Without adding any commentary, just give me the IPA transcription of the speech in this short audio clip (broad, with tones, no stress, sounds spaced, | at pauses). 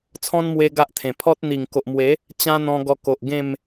t͡sʰ ɔ̃˦ n m w e˦ ɡ a˦ ʔ t̪ʰ ẽ˨˩ pʰ ɔ˦ t̚ n̪ i˨˩ ŋ k o˨ ʔ m w e˨˦ | t͡ɕ ã˦ n̪ ɔ̃˧ ɡ ɔ˧ k o˨ ʔ ɡ ẽ˥˧ m